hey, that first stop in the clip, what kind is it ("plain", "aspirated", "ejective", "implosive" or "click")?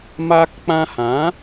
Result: plain